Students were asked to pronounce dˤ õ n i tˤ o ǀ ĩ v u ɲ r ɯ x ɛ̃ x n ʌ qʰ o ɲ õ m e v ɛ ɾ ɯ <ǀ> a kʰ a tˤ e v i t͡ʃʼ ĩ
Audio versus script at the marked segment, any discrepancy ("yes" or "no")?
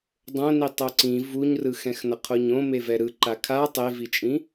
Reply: yes